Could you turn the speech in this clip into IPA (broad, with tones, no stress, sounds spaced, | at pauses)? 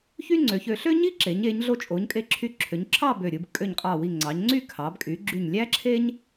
ç y˥ ŋ͡ǀ ø˩˧ ç ø˧ ɬ ø˥ ɲ i˥ ǁ e˩˧ ɲ e˩˧ ɲ ɮ o˧ t͡ʃʼ o˩˧ ɲ kʼ e˧ ǁʰ y˧ ǁʰ ø˩˧ ɲ ǁʰ ɑ˥˧ b ø˧˩ ɾʲ ɯ˧ b kʼ ø˧˩ ɲ qʼ ɑ˧˩ w i˧˩ ŋ͡ǀ ɑ˩˧ ɲ ŋ͡ǀ y˥˧ kʰ ɑ˩˧ b kʼ y˩˧ ɡ͡ǁ y˧˩ ɲ lʲ æ˥ ǁʰ e˥ ɲ